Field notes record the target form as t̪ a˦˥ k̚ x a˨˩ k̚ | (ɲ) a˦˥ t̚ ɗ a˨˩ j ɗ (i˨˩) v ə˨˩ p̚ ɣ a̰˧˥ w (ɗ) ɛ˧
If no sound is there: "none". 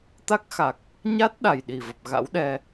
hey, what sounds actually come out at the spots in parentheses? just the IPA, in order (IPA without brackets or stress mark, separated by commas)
ɲ, i˨˩, ɗ